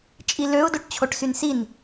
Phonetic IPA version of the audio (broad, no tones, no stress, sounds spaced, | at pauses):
t͡ʃʼ i l ø ʊ̯ d o ʈ t͡ɕʰ o ʈ s y n s i n